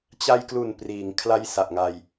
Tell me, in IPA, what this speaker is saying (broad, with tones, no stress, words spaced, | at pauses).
t͡ɕa˧jklu˨˩n priː˩˦ŋ kʰla˧j sa˨˩ʔŋa˧j